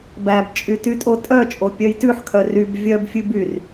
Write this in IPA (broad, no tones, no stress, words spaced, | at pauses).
bæbt͡ʃʼy tytʼotʼœt͡ʃʼo pʲœjtʉħkʰœ ryb vʲœbfʲʉ byr